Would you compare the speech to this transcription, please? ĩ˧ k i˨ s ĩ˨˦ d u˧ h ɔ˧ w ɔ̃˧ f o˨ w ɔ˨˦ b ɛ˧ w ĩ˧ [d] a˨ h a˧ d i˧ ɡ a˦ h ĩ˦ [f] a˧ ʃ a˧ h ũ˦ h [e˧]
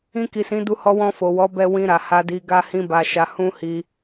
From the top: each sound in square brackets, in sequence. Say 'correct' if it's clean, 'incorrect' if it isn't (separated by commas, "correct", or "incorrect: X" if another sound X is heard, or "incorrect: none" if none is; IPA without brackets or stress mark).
incorrect: ɾ, incorrect: b, incorrect: i˧